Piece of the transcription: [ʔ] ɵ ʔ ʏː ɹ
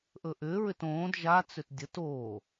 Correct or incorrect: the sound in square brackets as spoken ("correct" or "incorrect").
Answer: correct